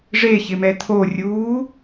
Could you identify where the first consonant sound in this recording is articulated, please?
retroflex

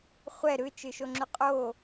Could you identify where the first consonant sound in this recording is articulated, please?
uvular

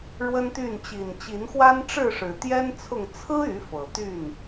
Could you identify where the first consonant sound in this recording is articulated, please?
retroflex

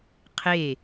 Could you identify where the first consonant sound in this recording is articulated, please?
uvular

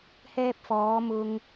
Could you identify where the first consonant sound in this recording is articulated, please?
glottal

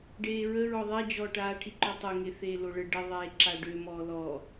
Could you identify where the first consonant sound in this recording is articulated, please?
retroflex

